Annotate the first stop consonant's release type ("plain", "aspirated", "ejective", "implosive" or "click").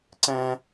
click